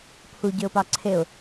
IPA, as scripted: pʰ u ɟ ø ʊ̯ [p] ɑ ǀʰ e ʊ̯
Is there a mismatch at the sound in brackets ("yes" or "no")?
no